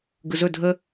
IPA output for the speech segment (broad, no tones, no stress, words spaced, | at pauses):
ɡɯzɵ dʱə